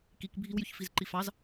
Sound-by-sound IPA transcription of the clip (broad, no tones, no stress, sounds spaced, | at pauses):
k i k bʱ i w j y ç f i z ǃ i f ɑ z